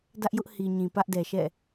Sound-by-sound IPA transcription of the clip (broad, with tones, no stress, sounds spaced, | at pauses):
d ä˦ ʔ j ʊ˦ ʔ h i˨ ɲ ĩ˨ p ä˦ ʔ d ɛ˨ ʃ ɛ̰˦˨